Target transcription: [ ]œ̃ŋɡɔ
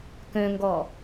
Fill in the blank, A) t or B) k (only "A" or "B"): B